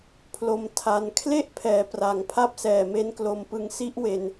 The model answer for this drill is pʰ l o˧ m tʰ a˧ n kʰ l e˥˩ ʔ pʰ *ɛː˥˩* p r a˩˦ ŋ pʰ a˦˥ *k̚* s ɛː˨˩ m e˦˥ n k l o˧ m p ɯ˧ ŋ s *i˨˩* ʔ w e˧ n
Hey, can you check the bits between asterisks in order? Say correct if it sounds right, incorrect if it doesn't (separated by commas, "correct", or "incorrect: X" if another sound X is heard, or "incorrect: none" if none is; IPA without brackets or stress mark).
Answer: incorrect: ɛː˩˦, incorrect: p̚, incorrect: i˦˥